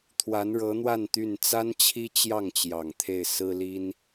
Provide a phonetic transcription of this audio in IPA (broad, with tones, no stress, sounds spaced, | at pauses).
t̪ʰ w a˧˥ n ɻ ɤ˧˥ n̪ w a˥˧ n t̪ y˥˩ n t͡s a˥ n t͡ɕʰ i˥ t͡ɕ j ɑ˥˩ ŋ t͡ɕ j ɑ˨˩ ŋ t̪ʰ e˥˩ ɪ̯ s ɹ̩˥ l i˥ n